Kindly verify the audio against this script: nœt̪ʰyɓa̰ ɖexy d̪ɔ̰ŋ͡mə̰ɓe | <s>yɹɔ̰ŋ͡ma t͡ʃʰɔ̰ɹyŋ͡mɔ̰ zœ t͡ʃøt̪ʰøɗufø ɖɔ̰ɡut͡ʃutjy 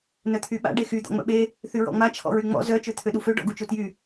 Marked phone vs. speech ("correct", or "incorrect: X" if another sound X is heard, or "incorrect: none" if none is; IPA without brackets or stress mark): incorrect: θ